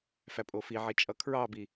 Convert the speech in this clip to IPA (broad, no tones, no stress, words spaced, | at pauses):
fæpʼofiʕi t͡ʃʼʌkʰɹɑbi